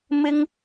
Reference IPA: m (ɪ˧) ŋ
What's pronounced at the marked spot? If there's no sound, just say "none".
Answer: ɪ˥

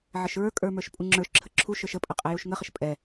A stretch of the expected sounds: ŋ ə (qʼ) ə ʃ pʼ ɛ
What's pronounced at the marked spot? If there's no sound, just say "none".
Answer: χ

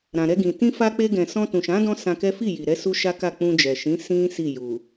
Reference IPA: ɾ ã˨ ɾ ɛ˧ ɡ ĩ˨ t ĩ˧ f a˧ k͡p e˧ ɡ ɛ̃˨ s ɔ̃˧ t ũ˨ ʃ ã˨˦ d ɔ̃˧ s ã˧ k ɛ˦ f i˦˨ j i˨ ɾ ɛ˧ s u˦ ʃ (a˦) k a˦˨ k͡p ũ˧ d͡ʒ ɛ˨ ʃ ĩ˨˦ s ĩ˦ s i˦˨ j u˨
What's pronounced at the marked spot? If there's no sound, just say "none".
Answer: a˦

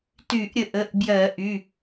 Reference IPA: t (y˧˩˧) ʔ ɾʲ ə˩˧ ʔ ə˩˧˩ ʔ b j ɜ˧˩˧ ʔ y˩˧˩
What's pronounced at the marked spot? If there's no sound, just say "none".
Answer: y˧˩˧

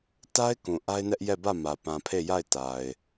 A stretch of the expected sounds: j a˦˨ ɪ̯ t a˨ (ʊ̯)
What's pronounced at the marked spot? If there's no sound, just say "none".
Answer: ɪ̯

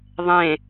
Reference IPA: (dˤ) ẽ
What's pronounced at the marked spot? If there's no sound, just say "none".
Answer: ðˤ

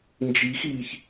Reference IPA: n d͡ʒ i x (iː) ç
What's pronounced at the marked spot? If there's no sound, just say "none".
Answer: iː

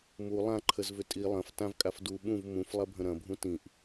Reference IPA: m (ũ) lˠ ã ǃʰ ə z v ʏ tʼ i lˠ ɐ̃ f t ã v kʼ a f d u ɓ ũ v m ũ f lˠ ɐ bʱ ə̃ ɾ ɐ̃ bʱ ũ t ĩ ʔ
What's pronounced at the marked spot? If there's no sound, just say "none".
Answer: u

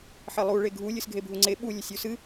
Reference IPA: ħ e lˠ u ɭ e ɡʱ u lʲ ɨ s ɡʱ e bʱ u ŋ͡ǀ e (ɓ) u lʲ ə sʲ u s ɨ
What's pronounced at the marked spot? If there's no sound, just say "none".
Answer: ɓ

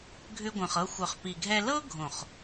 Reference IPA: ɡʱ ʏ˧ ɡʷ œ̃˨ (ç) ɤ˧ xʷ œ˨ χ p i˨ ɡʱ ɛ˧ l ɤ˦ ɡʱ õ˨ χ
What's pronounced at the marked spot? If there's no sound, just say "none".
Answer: χ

